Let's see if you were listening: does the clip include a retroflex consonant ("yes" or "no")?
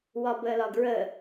no